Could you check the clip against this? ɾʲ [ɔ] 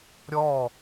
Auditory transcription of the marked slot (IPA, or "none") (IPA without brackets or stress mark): ɔ